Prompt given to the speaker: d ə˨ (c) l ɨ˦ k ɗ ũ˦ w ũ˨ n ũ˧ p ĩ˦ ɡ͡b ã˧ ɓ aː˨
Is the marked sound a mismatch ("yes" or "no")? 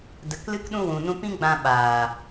yes